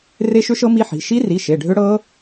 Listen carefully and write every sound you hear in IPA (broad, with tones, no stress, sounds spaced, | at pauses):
r e˦˥ ʃ ʏ˦˥ ʃ ɤ˦˥ m i˦˥ ħ i̤˩˧˩ ʃ i˦˥ r i˩˧˩ ʃ e˩˧˩ ɖʱ ʏ˦˥ ɽ ɤ˦˥